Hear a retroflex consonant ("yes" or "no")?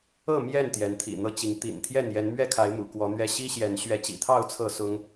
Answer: no